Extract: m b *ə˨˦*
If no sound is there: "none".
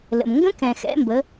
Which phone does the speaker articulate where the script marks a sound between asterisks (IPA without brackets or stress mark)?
ə˨˦